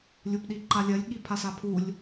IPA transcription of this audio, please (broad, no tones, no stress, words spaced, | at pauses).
lʲupɗiǃalʲɜlʲ ɠipʰasapʰulʲ